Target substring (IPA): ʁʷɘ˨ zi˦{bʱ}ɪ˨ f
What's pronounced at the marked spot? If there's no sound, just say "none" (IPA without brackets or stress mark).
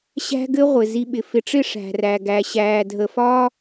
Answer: ɓ